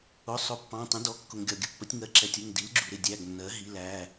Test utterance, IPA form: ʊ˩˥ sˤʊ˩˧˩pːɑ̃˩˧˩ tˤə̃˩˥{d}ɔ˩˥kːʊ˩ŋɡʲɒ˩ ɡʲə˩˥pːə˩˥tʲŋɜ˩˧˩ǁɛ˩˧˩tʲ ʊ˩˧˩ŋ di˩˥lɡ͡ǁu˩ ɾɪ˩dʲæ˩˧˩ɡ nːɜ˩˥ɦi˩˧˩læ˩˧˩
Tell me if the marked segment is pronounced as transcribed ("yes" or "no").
yes